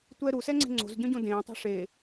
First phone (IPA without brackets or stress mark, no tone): tʷ